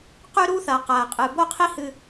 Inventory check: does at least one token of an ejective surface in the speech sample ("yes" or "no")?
yes